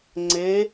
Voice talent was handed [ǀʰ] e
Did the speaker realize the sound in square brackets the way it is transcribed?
no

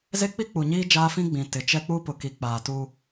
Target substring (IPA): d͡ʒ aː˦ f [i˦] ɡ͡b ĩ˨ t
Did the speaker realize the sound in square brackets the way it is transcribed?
no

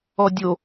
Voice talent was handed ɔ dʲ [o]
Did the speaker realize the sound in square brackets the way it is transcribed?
yes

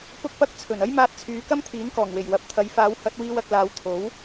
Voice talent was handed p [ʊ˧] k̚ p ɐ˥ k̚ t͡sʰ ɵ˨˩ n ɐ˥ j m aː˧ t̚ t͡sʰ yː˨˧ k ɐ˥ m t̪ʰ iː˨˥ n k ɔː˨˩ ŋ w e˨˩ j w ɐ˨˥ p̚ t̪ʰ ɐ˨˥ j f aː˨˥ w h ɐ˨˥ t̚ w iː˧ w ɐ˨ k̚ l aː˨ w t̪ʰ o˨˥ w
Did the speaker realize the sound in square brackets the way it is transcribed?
no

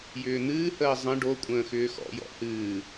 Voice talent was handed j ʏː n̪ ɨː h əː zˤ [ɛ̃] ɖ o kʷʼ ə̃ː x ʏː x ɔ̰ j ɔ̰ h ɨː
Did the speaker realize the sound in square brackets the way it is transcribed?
no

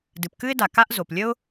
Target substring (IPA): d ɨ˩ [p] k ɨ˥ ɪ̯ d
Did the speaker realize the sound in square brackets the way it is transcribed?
yes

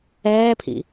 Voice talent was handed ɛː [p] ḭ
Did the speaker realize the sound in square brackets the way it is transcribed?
no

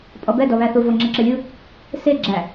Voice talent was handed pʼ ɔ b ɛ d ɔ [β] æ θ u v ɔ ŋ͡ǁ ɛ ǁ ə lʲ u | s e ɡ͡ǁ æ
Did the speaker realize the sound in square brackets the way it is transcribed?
yes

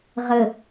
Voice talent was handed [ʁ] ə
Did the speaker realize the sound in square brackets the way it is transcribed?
yes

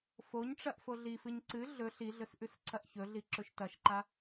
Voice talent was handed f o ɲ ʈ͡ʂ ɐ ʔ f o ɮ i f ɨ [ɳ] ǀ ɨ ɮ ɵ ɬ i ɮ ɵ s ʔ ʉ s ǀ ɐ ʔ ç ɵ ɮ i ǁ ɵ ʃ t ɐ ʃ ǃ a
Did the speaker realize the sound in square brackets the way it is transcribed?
no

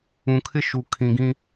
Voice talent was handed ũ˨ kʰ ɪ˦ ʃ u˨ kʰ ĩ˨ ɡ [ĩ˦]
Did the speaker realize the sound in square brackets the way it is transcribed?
yes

